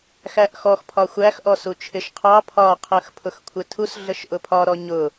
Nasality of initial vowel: oral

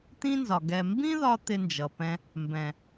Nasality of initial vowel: nasal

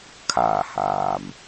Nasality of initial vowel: oral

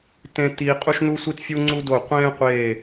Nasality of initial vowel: nasal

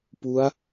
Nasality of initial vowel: oral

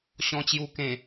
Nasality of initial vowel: nasal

